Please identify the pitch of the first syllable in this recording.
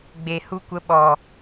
low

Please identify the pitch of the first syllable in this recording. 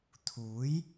rising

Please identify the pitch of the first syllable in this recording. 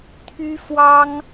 high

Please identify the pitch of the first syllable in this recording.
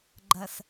low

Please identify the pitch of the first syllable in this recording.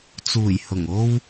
low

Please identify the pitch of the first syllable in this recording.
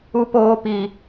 high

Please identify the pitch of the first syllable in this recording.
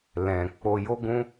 low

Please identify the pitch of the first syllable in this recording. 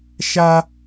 high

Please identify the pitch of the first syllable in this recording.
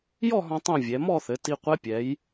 falling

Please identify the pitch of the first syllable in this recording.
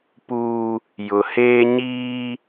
high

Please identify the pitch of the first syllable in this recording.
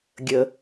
low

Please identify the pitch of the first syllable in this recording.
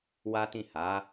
high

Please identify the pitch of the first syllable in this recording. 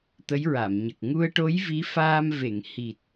rising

